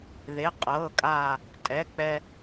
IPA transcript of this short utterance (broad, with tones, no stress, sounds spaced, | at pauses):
ð e˩˧˩ qʼ ɤː˩˧˩ kʼ aː˧˩ | tʼ ɛ˩˧˩ k͡p ɛ˧